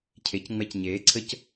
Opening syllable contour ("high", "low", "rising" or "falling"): rising